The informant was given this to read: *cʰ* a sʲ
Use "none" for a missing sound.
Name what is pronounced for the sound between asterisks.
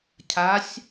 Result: cʰ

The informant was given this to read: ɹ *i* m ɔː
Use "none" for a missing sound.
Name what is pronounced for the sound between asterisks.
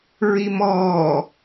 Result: i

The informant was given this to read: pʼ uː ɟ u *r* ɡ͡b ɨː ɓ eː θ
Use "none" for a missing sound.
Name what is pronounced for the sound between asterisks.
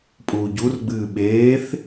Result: r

